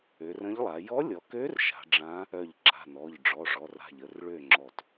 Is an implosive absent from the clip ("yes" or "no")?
yes